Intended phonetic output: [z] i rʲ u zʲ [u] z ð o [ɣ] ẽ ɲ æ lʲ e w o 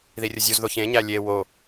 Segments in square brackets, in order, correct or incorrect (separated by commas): incorrect, correct, incorrect